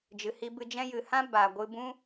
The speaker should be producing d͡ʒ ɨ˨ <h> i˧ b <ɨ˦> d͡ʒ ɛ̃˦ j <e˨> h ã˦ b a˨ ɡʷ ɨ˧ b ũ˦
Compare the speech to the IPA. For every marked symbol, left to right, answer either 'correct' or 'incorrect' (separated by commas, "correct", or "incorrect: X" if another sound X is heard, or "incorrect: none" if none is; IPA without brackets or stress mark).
correct, incorrect: ɨ˧, incorrect: ɨ˨